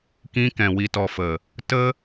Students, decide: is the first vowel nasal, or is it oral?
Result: nasal